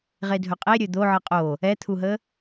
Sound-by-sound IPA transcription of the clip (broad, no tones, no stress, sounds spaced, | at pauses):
ʁ e dʱ ɵ qʼ e ɾʲ ɵ d̪ o ʕ ɨ qʼ o | ɛ t̪ʰ u ɦ ə